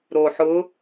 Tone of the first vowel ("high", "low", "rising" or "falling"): low